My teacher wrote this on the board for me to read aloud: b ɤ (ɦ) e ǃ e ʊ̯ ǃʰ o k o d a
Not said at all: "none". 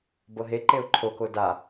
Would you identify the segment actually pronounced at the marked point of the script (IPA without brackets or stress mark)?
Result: ɦ